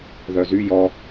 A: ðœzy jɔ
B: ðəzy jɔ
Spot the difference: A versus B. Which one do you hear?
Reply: A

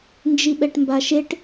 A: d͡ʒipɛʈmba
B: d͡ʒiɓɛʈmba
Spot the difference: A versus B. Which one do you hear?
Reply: B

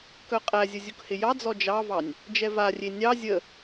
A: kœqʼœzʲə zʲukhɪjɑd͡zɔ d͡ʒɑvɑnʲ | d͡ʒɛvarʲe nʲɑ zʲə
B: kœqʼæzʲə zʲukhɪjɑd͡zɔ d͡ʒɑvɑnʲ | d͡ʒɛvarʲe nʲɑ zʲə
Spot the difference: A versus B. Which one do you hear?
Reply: B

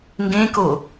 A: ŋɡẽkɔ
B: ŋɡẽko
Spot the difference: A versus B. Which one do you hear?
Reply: B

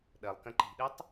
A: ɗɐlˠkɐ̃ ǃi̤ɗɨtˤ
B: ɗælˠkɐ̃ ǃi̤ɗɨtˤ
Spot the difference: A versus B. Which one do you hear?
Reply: A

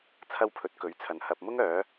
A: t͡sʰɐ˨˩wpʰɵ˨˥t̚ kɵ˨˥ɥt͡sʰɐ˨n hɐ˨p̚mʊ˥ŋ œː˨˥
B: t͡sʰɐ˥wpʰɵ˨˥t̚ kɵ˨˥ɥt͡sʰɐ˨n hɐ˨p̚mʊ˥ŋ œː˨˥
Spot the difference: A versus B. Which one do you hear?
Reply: B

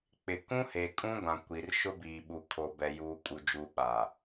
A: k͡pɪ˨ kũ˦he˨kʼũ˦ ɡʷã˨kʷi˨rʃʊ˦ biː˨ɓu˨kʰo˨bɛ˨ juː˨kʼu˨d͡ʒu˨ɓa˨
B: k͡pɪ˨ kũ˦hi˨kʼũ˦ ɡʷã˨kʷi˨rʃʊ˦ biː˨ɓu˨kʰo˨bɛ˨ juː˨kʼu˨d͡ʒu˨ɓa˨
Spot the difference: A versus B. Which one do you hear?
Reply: A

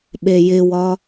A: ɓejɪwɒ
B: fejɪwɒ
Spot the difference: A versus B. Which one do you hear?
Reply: A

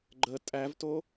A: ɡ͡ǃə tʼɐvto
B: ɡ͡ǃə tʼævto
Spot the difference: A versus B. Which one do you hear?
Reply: B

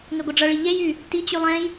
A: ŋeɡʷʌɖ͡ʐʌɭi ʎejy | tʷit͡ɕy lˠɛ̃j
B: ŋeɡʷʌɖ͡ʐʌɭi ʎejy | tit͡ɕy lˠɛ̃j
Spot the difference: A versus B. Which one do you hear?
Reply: B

